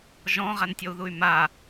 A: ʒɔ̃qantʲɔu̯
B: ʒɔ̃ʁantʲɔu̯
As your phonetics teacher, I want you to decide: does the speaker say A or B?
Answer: B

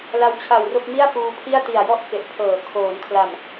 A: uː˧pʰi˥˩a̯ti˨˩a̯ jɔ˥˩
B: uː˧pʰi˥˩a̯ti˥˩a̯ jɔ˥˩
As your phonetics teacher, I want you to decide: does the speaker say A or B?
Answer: A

